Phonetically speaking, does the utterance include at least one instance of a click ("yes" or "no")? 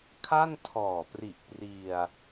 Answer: no